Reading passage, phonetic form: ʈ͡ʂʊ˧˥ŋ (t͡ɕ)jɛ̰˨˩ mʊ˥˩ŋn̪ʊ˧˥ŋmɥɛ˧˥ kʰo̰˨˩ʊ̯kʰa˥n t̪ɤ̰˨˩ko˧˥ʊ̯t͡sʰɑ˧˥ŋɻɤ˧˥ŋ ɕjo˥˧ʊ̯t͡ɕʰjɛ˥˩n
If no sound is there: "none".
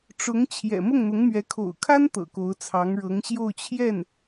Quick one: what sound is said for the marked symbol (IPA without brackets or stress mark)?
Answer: t͡ɕʰ